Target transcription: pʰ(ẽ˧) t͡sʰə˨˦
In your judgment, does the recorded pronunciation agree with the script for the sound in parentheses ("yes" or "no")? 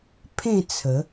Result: no